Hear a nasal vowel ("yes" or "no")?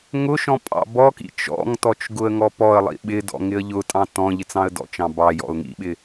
yes